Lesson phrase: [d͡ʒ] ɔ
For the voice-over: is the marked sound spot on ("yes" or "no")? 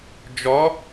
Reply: yes